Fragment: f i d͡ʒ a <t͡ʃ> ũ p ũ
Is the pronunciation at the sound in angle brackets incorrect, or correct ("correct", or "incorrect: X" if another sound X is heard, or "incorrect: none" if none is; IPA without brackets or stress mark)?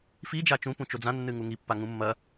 correct